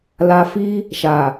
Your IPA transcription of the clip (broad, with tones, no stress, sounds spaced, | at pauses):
l a˨ f i˧ | ʃ a˨